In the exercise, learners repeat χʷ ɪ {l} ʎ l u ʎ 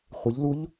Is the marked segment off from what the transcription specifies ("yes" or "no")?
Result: yes